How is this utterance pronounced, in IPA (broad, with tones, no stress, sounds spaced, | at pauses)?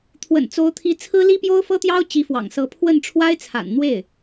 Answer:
t̪ʰ w ə̰˨˩ n t͡s o˧˥ ʊ̯ t̪ʰ i˧˥ t͡sʰ ɹ̩˥ l i˥ p j o˥ ʊ̯ f ɤ˥ t̪ j ɑ˥ ʊ̯ t͡ɕ i˧˥ f w ɑ̰˨˩ ŋ s ɤ˧˥ pʰ w ə˥˩ n ʈ͡ʂʰ w a˥ ɪ̯ t͡sʰ a̰˨˩ n n̪ w e˥˩ ɪ̯